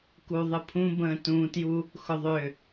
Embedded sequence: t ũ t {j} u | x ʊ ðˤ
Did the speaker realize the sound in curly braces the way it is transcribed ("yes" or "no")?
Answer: yes